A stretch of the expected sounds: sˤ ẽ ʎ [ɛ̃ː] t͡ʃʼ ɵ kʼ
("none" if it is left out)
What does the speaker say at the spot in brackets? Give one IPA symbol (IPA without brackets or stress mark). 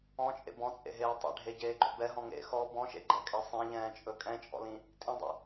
ɛ̃ː